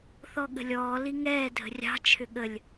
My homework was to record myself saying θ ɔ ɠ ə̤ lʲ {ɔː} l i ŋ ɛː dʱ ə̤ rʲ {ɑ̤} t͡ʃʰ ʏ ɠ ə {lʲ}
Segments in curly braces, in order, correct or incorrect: correct, correct, correct

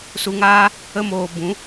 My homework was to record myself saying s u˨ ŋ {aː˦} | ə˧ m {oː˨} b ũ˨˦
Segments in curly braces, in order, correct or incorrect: incorrect: aː˧, correct

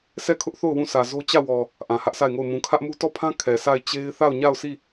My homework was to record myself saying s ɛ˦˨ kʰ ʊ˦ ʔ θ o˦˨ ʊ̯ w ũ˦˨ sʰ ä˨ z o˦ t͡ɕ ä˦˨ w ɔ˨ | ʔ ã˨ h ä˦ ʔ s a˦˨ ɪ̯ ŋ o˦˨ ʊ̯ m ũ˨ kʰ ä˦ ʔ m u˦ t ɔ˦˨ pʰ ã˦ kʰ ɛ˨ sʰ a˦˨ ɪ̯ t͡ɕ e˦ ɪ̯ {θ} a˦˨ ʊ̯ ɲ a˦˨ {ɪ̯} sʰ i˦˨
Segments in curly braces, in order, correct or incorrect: correct, incorrect: ʊ̯

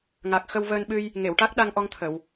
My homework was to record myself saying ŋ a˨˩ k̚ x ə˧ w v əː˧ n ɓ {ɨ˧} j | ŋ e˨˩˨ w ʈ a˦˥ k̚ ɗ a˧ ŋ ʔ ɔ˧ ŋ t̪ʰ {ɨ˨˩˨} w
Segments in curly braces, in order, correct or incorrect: correct, incorrect: ə˨˩˨

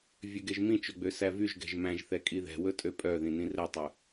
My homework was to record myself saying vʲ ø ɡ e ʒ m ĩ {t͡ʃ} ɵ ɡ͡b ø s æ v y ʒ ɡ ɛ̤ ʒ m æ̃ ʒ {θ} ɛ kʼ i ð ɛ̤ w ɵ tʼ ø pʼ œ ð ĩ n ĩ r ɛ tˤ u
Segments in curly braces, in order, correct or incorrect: correct, correct

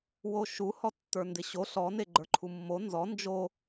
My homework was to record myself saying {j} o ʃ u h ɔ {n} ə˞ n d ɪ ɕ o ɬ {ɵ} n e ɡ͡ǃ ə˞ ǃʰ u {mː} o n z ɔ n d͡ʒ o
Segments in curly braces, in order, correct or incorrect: incorrect: w, incorrect: tː, incorrect: ɔ, correct

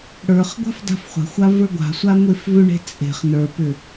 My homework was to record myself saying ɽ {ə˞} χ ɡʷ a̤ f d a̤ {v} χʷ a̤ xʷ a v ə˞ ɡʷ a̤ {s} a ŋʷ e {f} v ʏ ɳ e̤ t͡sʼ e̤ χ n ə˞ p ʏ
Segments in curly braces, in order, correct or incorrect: correct, incorrect: f, incorrect: sʷ, correct

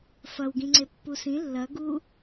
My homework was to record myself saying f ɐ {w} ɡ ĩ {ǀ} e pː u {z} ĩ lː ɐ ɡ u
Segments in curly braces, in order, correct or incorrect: correct, incorrect: ŋ͡ǀ, incorrect: s

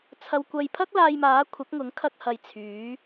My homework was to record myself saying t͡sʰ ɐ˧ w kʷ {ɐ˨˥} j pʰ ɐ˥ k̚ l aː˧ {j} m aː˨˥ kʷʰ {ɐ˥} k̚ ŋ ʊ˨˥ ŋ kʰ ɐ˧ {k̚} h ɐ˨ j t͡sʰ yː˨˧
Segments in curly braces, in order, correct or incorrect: incorrect: ɐ˧, correct, incorrect: ɐ˨˥, correct

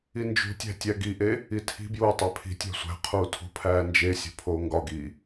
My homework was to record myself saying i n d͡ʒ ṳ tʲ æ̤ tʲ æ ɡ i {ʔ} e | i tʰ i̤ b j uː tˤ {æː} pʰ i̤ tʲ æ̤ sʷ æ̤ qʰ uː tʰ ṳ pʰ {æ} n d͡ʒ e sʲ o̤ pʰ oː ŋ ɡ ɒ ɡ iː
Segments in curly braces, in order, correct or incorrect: correct, incorrect: æ, incorrect: æː

